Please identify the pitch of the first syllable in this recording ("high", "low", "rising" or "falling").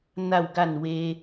falling